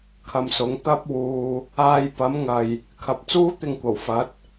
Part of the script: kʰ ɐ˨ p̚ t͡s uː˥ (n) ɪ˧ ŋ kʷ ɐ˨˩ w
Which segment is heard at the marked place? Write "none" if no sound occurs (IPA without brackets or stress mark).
t̪